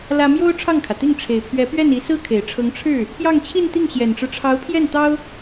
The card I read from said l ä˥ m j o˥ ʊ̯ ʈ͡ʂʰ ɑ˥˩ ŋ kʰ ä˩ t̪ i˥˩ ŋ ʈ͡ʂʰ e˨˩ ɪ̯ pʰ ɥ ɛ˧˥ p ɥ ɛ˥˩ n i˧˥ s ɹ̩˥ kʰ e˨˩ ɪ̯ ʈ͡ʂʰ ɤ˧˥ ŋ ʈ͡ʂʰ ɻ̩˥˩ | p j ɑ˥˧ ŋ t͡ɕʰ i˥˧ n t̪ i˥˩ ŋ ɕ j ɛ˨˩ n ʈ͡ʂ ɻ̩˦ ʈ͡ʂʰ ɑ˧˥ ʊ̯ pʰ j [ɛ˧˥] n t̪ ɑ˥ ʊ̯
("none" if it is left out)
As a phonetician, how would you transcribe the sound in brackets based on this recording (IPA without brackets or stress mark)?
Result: ɛ˥˩